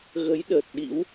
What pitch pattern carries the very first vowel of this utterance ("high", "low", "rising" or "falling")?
rising